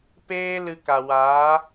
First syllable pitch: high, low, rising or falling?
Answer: high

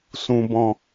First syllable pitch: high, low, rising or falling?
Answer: low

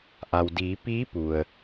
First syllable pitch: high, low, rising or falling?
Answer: low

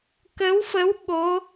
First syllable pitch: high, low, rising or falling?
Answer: rising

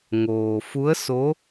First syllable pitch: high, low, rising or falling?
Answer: low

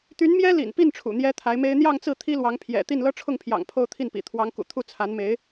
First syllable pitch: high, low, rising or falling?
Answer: rising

